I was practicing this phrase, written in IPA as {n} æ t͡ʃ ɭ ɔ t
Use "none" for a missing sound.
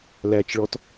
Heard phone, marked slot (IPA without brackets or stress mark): l